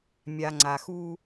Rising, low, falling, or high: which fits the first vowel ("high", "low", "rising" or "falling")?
low